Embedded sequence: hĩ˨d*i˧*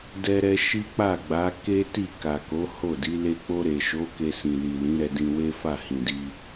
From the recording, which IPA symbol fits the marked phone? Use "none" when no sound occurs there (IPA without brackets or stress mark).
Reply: i˧